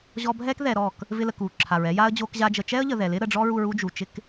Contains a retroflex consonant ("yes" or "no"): yes